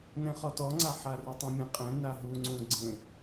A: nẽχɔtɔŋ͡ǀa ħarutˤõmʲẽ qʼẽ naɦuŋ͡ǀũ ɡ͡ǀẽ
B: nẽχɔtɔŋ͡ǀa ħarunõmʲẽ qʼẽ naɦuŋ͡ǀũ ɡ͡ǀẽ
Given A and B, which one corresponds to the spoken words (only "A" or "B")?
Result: A